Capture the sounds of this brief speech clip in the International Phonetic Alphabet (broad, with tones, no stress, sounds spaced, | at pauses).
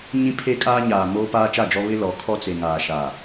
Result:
ɲ ĩ˦ pʰ e˦ kʼ aː˦ ɲ aː˨ m oː˦ p aː˦ t͡ʃ a˦˨ d͡ʒ ɔ˦ β ɪ˦ l ɔ˨˦ kʰ ɔ˦ t͡s e˨ ŋ aː˨ ʃ a˨